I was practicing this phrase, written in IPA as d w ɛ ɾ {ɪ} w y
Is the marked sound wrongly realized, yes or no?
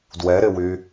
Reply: no